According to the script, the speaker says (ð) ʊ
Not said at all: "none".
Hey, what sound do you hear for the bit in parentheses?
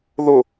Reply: ð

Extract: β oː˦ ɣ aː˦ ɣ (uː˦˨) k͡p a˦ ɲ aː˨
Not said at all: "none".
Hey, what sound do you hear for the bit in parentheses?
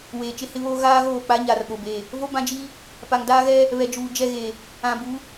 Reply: oː˦˨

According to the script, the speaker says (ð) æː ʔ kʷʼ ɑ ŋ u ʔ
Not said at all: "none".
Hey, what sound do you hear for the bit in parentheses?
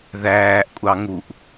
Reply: ð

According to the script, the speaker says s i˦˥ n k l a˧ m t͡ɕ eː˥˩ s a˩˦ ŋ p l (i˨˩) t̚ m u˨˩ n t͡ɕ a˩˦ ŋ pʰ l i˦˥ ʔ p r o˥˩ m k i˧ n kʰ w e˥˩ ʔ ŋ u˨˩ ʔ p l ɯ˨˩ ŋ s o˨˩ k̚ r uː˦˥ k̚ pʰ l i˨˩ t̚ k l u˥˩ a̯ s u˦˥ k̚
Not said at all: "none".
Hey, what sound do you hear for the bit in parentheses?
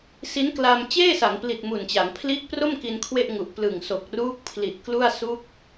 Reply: i˨˩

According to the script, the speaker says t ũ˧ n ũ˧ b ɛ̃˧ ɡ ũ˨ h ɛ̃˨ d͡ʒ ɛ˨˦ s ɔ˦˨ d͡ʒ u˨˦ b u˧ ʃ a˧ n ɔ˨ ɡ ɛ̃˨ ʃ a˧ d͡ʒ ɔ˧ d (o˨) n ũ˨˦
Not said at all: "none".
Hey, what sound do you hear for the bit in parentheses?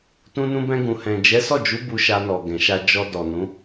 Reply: ɔ˨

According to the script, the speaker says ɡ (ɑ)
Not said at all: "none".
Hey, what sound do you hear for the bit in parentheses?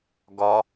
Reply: ɒ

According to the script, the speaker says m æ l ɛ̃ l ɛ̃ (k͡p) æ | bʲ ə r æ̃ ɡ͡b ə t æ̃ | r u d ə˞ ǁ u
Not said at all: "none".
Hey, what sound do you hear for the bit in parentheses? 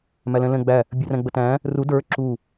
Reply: ɡ͡b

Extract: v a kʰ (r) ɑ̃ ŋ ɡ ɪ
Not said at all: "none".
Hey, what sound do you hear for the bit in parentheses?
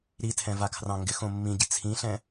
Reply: r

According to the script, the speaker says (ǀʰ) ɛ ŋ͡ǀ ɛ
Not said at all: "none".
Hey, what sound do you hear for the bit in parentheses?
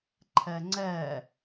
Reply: ǃʰ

